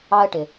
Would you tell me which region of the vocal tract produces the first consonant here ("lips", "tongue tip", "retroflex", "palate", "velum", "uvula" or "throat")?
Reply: retroflex